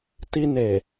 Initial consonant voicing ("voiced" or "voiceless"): voiceless